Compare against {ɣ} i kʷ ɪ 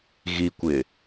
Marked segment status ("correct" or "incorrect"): correct